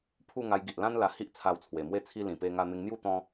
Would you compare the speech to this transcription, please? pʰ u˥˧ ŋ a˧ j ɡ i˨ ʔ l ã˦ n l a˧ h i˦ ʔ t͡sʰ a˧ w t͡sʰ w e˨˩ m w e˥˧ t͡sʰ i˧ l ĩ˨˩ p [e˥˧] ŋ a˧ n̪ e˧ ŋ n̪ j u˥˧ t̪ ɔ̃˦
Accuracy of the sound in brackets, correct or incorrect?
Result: incorrect